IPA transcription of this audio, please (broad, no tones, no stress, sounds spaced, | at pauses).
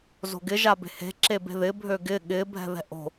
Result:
z o̤ ɡ ɪ ʒ a b e̤ h e̤ ǁ e b e̤ ð ɪ bʱ ø ɡ ɪ ɠ ɪ bʱ ɛ̤ ð ɛ̤ ʔ o̤